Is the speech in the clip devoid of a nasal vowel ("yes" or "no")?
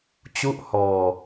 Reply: yes